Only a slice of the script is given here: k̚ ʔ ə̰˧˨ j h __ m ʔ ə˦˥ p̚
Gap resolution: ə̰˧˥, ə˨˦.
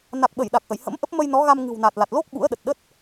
ə̰˧˥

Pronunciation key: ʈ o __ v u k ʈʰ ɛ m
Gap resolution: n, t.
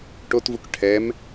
t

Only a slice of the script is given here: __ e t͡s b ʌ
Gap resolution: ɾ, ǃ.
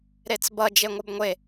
ɾ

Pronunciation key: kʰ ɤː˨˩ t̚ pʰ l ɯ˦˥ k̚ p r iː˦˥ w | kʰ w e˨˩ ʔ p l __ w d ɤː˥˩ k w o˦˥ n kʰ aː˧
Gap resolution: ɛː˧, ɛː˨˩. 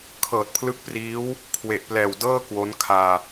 ɛː˨˩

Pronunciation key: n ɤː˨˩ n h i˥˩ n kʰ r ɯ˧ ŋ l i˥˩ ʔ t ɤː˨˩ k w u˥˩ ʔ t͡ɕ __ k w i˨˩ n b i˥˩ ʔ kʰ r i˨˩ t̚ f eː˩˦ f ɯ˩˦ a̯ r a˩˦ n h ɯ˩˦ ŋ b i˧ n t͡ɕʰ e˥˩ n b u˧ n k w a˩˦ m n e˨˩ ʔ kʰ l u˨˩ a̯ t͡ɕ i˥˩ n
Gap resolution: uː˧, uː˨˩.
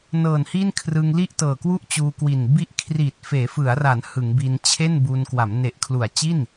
uː˧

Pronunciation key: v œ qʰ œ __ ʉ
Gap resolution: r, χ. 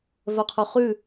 χ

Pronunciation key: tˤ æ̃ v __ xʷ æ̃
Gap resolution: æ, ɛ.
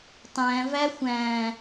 æ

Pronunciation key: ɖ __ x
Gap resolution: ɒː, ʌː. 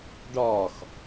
ɒː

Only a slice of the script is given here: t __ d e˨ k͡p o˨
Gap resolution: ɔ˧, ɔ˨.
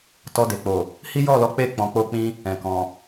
ɔ˧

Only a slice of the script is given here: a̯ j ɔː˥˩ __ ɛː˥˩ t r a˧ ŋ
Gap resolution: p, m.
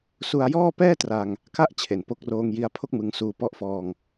p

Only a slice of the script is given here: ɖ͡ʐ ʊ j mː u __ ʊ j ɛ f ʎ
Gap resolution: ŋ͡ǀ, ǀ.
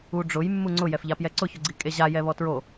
ŋ͡ǀ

